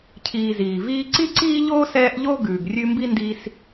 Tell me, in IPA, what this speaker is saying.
cʰ iː˨ z iː˩ v iː˥ ǀ i˥ ǀ iː˥ ʎ oː˥ s ɛː˦ ʔ ʎ o˥ ɡ ʉː˨ ɡ rʲ ʉ˦ m b i˥ n d i˥ s

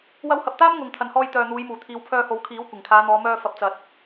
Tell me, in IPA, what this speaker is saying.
w ɐ˧ w h ɐ˨ p̚ t̪ aː˥ m ŋ ʊ˨ ŋ t̪ʰ ɐ˨ n h ɔː˧ j t̪ œː˨ n̪ uː˨˧ j m uː˨˩ t̪ʰ iː˨˧ w pʰ œː˧ h o˨˥ w kʰ iː˨˥ w kʷ ɪ˨˩ ŋ kʰ aː˨˧ n̪ ɔː˨˧ m œː˧ f ɐ˨ p̚ t͡s ɐ˨ t̚

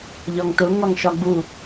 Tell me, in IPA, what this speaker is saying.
ʎ ɒ ŋ t ʊ ŋ ɒ ŋ ʃ ɒ ɡ͡b u

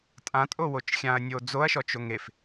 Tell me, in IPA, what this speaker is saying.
tʼ ã tʼ o w o t͡ʃ xʲ ã ɐ̯ nʲ o d͡z o ɐ̯ ʃ ɔ t͡ʃ o ŋ e f

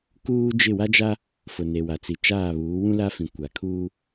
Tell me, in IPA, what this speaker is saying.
k uː˦ d͡ʒ ɪ˦˨ w a˦ d͡ʒ a˦ | f ʊ˨ n e˨ w a˨ t͡s i˨ t͡ʃ aː˦˨ β uː˨˦ w ũ˦ l a˦ f ĩ˨ kʷ a˨ kʰ uː˦

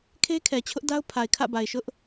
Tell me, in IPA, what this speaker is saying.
kʰ e˦ kʰ ɛ˨ t͡ɕʰ ʊ˦ ʔ d a˦ ʊ̯ pʰ a˨ ɪ̯ kʰ ä̰˦˨ b a˨ ɪ̯ ʃ ʊ˦ ʔ

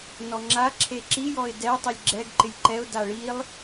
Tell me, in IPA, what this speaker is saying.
n ɔ ŋ͡ǁ a ǁʰ e ǁ i j ɔ ɪ̯ d ɛ tˤ i lʲ ɡ͡ǁ ɛ ɡ ǃ ɪ lʲ ǃ ɛ ʊ̯ d a ɭ i lˠ

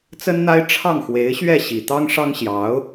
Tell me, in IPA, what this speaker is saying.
t͡s ə˥ n n̪ a˥ ɪ̯ ʈ͡ʂʰ ɑ˥˩ ŋ x w e˧˥ ɪ̯ ɕ ɥ ɛ˥˩ ɕ i˨˩ t̪ ɑ˥ ŋ ʂ ɑ˥ ŋ ɕ j ɑ˧˥ ʊ̯

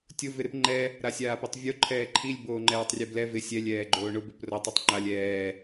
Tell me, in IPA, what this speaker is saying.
tʲ ʊ v ɪ ɾ ɪ p ŋ͡ǃ ɛ | ɾ a sʲ aː p i tˤ vʲ o ǃʰ ɛː ǃʰ i lʲ b oː ŋ͡ǃ ɛː tˤ rʲ ɛ b l ɛ v ɪ sʲ ɛ lʲ ɛː ɡ͡ǃ oː ɳ ʊ b ɪ p r o tˤ ʊ tˤ ŋ͡ǃ a lʲ ɛː

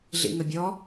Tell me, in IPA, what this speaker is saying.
ɮ ḭ ŋ ə bʲ ɔ

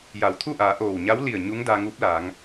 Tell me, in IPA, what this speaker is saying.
j a˩˧ w t̪ʰ u˥˨ ʔ aː˩˧ ʔ oː˧˩ w ɲ a˧˥ w l i˧˩ ə̯ ɲ u˧˥ ŋ d a˧ ŋ uː˧˥ p̚ l aː˩˧ ŋ

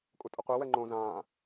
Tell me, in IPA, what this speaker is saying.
kʼ u tʼ ʊ qʷ e w ɛ ŋ͡ǃ õ z ãː

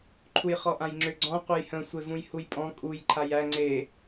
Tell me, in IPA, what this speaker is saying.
ǃʰ u j χ ɔ ʔ ã j ŋ͡ǁ ʏ ɡ͡ǀ ɔ̃ qʷ e j h ə̃ sʷ e v ũ j h u j pʼ ɔ̃ kʼ u j ǃʰ a j æ ŋ͡ǀ e

